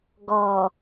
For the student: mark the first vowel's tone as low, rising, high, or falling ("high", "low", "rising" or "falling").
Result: low